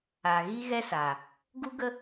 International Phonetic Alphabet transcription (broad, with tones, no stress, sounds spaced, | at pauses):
aː˨ ɣ iː˦ ɣ ɛ˦ s a˨ | ɡ u˦ ɡ ə˦